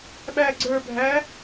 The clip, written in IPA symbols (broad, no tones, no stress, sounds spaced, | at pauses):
ɓ æ ɡ͡ǀ ə˞ bʱ æ